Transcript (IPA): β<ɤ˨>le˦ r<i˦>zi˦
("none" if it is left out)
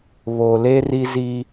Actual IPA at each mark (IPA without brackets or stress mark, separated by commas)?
o˨, i˦